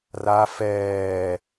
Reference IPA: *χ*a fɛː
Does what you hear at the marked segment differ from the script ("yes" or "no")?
yes